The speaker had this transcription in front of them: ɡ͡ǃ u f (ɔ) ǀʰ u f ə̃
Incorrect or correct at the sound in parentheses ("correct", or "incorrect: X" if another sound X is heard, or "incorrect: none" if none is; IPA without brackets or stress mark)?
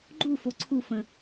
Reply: incorrect: o